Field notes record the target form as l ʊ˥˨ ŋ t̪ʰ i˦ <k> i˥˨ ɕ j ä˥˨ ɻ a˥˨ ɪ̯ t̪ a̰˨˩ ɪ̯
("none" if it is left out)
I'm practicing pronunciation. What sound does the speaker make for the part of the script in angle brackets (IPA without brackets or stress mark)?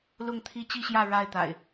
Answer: t͡ɕ